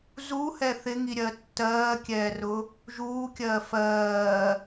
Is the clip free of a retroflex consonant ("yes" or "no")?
yes